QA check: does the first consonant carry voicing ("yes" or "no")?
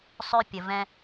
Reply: no